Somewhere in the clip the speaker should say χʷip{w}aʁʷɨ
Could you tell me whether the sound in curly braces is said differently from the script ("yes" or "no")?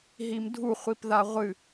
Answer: yes